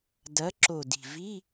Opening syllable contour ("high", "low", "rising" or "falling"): rising